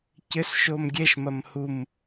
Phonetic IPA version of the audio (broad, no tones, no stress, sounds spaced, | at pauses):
c ɘ s ʃ o m ɡʲ ɛ ʃ m ɐ m h u m